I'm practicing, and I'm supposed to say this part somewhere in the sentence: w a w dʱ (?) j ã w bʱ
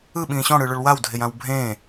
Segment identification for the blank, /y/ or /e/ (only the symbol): e